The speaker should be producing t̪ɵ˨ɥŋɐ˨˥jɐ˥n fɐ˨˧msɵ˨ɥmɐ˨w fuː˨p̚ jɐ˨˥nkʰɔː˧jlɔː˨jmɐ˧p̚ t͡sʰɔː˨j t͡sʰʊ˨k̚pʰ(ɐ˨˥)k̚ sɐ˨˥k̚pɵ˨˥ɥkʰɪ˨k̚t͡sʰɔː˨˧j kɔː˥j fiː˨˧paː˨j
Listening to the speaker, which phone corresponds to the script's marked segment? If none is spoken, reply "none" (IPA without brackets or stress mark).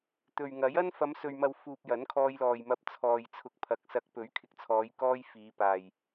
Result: ɐ˨˥